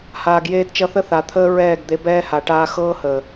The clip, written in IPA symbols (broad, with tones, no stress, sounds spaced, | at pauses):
h aː˨ ɡ j eː˧ d t͡ʃ ʌ˧ θ ə˦ θ a˨ t̪ʰ əː˧ ɹ ɛː˦˨ ɡ d̪ e˧ b ɛː˦ h a˨ ʈ aː˧ x ɤː˦ h əː˨